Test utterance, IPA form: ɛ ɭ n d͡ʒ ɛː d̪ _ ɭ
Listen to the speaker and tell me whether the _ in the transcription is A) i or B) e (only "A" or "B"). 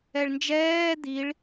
A